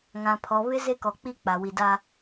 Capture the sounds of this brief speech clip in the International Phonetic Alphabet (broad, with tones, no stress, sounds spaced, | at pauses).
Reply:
ŋ ã˨ pʰ ɔ˨ β ɪ˦ z e˦ k ɔ˨ k͡p i˦ k͡p a˨ w i˨ d a˦